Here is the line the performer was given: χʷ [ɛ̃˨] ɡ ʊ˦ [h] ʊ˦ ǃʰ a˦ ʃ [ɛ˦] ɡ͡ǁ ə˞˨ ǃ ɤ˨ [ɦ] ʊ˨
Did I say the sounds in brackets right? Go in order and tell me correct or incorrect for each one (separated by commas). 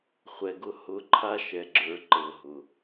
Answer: incorrect, correct, incorrect, correct